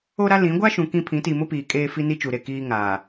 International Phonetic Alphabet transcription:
o˦ ɾ a˦ l ĩ˨˦ ɡʷ a˦ ʃ ũ˨ k ĩ˦ pʰ ĩ˨˦ t iː˨ m ʊ˦ p iː˨ kʼ eː˦ f i˦ n i˦ t͡ʃ u˨ ɾ e˨ k iː˦ ŋ aː˨

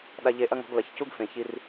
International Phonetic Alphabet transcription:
ɗ a˧ ʎ e˧ ʔ ɐ˥ ŋ ɔ̤˩˥ ɡ l ɐ˩ ç c u˥ ɡ f ẽ˩ ç i˧ r

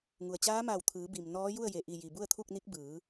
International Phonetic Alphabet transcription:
ŋ u˩ ə̯ t͡ɕ aː˧˥ m aː˧˩ w t̪ʰ ɯː˩˧ b i˩ m n ɔː˧˥ j u˥˨ ə̯ j e˩ ʔ i˧˩ j i˩ b u˥˨ ə̯ t̪ʰ u˥˨ k̚ n i˧˥ k̚ b ɯː˩˧

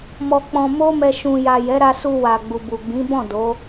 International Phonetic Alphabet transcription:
m ɔ˧ k͡p ɔ̃˧ m o˦ m ɛ˧ ʃ ũ˨ j a˨ j ɛ˨˦ ɾ a˧ s u˧ w a˨ ɡ͡b u˨ b u˨ ɡ͡b ĩ˨˦ b ɔ̃˦˨ d o˨˦

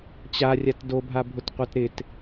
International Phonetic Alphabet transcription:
t͡ɕ a rʲ a t d o bʱ a bʱ ʊ t qʷ a t ɾ ɪ t

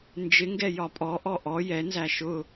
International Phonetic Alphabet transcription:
n d͡ʒ ɪ ŋ ɡ ɛ j ɒ pʼ ɔ ʔ ɔ ʔ ɔ j ɛ n z æ ʃ ʊ

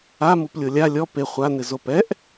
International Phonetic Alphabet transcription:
a m u p lʲ o lʲ a lʲ ɔ p e χʷ a n ɪ z o p ɛ ʔ

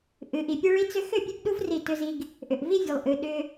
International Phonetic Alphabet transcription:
ʔ ɨ˨ ʔ i˨ pʲ e˦ ɭ i˦ t͡s ʏ˦ x ʏ˦˨ pʲ ɨ˦ b ɗ u˦ v r i˦˨ t ʏ˦ z i˦ ɡ | ʔ ʏ˨ ʔ v i˦ vʲ ɨ˨ lˠ ʔ ɨ˨ ɗ ʏ˦

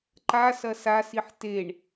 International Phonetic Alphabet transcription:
ǃ a s ɐ s a s i ħ t e ɳ

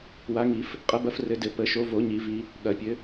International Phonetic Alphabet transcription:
w a˨˦ ŋ i˨˩˦ f | qʼ ɐ˨˦ b ɐ˨˦ f r ɘ˨˦ d ɘ˨˩˦ p ə˨˩˦ ʃ o˨˦ v o˨˩˦ ɲ i˨˩˦ v i˨˦ | ɠ ɐ˨˩˦ pʲ ɘ˨˦

